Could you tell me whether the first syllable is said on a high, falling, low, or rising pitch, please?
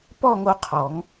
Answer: falling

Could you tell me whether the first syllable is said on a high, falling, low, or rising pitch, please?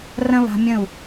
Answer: high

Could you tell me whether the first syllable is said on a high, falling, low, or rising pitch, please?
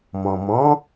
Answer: low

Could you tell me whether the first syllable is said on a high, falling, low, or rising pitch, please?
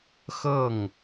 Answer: falling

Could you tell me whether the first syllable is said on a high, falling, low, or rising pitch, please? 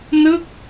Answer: falling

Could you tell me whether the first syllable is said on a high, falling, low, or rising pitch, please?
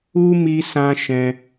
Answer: high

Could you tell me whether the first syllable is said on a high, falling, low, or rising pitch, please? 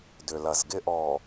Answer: low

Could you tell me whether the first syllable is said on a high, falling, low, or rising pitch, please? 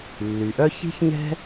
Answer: low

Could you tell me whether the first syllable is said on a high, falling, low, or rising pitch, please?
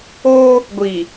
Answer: high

